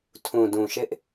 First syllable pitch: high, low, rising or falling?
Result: low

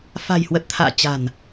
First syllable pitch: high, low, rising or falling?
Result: low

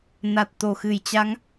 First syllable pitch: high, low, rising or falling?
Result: low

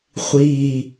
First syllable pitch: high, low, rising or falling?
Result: low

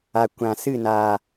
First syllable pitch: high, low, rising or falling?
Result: low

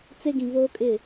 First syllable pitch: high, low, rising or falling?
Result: high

